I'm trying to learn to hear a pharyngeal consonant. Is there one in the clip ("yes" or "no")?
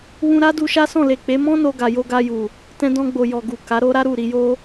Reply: no